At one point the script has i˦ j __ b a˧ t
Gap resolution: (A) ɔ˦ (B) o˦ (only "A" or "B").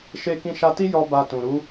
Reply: A